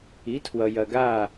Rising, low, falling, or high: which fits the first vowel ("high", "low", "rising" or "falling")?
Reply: rising